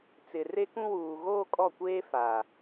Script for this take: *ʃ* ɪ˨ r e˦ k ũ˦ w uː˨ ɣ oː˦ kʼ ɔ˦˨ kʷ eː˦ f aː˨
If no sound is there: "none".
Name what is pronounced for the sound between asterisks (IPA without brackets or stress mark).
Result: t͡s